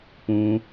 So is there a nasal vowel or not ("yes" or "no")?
yes